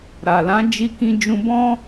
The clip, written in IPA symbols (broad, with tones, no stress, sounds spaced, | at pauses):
ɾ a˨ l ã˨˦ d͡ʒ i˧ k ĩ˧ d͡ʒ ũ˧ b ɔ̃˦